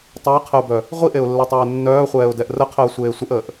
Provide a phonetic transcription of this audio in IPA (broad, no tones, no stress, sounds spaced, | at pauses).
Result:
tˤ a ɪ̯ qʰ ə ʊ̯ b œ | ʁʷ i ʔ e ʊ̯ lː ɛ tˤ ɛː nː œː χʷ ɛː ʊ̯ d ɛ ʔ r ə qʰ əː sʷ eː sʷ ə ʔ əː ʔ